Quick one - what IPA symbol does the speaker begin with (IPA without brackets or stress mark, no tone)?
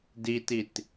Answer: d